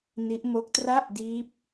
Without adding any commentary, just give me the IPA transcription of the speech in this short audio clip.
n i˦˥ ʔ m o˦˥ k̚ t r a˥˩ ʔ d iː˦˥ p̚

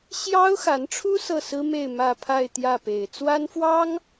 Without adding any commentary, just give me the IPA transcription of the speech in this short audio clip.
ɕ j ɑ˥ ʊ̯ x a˧˥ n ʈ͡ʂʰ u˥ s ɤ˥˩ s ɹ̩˥ m e˥˧ ɪ̯ m ä˥˧ pʰ a˥˧ ɪ̯ t̪ j ä˥˩ p e˨˩ ɪ̯ t͡s w a˥ n f w ɑ˥ ŋ

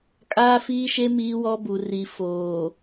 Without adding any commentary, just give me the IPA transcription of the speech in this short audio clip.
kʼ aː˦ f iː˦ ʃ e˦ m iː˦ w ɔ˦ b u˨ r i˨˦ f oː˨

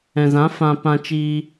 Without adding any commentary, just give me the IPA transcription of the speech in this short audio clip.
ɛ̃˨ z ã˨˦ f ã˨ p ã˧ t͡ʃ iː˧

